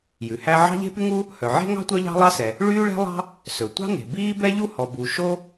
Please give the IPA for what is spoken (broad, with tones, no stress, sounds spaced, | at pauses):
j ʉ˩ h æ˥ ʕ ɑ̤˥ ʎ e̤˥ p y˥ ŋ u˥ | h œ˩ ʕ e̤˥ ŋ ɑ̤˥ tʷ œ˥ ʎ ɑ̤˥ lˠ ɑ˥ s ɛ˩ | ɭ yː˥ ɭ ɛ̤˥ lˠ ɑ̤˥ | s ɵ˩ tʷ ɑ̤˥ n e̤˩ b iː˥ b ɛ˥ ʎ u˥ h ɔ˩ b u˩ ʃ o˥